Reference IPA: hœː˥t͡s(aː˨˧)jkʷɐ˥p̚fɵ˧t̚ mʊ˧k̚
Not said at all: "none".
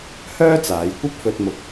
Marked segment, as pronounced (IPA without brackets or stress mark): aː˨˧